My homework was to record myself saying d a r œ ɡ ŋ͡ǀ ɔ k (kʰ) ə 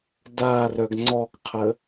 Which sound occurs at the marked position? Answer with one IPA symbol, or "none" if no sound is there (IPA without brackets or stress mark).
qʰ